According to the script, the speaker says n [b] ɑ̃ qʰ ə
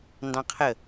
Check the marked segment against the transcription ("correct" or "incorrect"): incorrect